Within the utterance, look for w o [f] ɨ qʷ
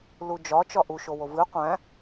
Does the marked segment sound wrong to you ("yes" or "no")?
yes